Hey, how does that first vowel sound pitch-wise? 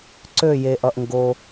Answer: falling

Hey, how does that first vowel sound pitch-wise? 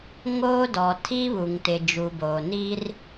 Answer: high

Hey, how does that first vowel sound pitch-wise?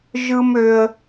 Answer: high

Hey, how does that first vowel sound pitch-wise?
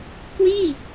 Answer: falling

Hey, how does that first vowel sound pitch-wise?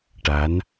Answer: rising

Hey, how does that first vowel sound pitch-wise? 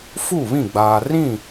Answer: falling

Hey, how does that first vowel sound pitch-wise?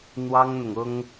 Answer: high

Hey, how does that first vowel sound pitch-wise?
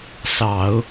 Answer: low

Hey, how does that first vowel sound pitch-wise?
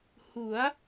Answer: rising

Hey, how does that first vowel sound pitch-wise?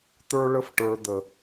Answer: high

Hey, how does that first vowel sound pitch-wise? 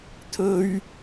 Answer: high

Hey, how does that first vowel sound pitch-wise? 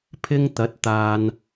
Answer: high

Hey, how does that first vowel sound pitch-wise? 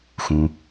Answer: low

